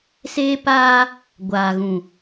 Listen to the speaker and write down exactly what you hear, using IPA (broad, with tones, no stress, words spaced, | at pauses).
seː˦paː˦ | ɡʷaː˨ɣũ˨